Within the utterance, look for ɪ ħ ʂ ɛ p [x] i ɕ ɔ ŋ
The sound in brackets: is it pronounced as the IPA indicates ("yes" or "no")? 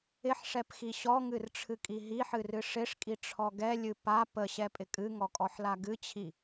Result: yes